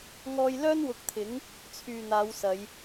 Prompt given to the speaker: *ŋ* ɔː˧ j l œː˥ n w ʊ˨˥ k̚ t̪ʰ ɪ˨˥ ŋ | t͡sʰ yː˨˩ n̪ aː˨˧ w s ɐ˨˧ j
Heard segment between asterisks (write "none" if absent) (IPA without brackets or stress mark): ŋ